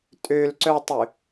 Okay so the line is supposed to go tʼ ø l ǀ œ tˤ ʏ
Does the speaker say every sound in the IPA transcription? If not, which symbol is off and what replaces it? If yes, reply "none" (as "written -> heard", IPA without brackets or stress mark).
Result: none